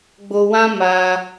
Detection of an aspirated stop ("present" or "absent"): absent